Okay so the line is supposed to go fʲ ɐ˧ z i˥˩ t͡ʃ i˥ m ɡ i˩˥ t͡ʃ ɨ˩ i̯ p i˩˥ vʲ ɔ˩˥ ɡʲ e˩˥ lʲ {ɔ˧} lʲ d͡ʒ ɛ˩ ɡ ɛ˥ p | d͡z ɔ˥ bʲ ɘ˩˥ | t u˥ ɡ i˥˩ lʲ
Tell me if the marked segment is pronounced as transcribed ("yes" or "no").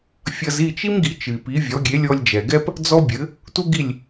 yes